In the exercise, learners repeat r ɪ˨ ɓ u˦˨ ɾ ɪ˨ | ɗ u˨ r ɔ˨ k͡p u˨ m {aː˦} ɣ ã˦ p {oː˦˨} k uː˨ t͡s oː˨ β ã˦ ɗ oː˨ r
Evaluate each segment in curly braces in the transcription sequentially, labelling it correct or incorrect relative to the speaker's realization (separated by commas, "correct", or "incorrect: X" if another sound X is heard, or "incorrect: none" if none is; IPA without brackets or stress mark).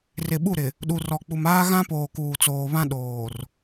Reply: correct, incorrect: oː˨